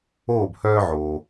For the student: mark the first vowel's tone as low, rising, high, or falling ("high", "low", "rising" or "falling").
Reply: falling